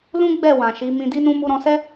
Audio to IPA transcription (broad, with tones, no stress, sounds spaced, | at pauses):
l ũ˦ ɡ͡b ɛ˦˨ w ã˨ ʃ i˨˦ m ĩ˧ d i˦ n ũ˦ m u˧ ɾ ɔ̃˧ s ɛ˦